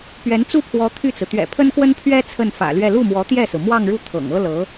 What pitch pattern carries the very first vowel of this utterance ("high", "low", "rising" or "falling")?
rising